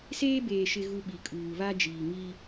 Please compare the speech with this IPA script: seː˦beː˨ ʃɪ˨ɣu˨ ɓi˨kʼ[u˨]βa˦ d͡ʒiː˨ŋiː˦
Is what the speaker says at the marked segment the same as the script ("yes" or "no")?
no